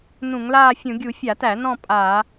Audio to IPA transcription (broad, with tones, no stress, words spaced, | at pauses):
nũ˧˩˧ŋlaː˥˧fʲũ˧˩˧ ɡʲu˧˩˧ fʲa˧˩˧tæ˧˩˧ nɔ̃˥˧ pʼaː˧˩˧